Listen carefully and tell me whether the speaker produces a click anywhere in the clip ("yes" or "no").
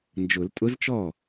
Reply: no